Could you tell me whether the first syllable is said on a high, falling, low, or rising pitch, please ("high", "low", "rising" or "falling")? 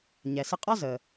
low